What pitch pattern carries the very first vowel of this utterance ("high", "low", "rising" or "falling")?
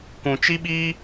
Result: low